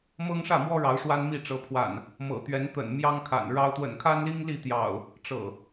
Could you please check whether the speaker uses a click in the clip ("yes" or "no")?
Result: no